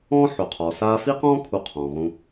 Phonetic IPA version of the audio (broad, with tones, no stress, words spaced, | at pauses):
ɔ̃ː˥ħo˩qʰɔ˩saː˦ fi˥qɔ̃ː˥kʰu˨ qʰɔ̃ː˩ʁũ˨